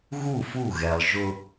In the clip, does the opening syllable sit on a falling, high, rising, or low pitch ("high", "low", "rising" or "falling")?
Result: falling